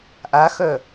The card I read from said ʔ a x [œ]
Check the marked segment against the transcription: correct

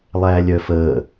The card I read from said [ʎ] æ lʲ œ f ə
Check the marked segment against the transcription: incorrect: lˠ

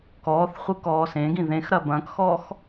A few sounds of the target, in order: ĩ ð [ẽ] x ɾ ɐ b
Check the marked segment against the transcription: correct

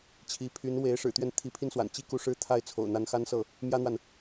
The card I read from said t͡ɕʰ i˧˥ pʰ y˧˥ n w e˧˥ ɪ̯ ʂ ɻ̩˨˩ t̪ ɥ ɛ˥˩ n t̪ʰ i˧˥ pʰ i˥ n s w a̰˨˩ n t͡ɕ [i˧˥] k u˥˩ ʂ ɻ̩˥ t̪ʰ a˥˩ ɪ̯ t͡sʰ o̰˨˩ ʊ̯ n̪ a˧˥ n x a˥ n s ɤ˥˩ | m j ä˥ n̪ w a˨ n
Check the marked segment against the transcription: incorrect: i˥˧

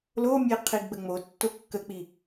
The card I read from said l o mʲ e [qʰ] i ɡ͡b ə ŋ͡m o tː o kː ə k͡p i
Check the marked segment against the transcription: correct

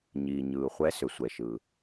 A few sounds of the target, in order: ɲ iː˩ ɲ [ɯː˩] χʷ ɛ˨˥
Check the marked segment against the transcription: correct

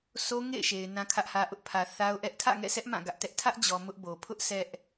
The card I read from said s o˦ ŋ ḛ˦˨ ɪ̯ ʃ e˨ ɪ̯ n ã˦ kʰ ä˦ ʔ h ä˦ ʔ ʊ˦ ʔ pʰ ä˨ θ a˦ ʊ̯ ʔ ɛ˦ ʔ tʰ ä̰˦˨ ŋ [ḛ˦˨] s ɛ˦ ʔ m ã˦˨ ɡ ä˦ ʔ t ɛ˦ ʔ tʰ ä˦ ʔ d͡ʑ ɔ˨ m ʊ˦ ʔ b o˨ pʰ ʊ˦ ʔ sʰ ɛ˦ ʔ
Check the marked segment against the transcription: incorrect: ɛ̰˦˨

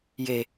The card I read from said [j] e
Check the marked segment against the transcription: correct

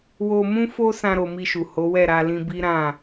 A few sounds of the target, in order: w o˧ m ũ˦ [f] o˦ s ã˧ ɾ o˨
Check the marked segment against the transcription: correct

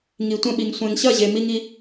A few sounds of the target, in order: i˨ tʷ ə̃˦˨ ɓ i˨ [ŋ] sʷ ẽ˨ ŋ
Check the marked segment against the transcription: correct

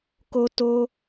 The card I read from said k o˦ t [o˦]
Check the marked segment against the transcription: correct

